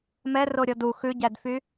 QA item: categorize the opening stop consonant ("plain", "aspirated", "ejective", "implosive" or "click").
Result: plain